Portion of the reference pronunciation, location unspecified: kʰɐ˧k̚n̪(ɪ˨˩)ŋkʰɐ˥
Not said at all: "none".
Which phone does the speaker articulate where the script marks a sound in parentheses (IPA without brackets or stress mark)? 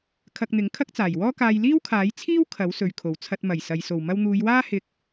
ɪ˨˥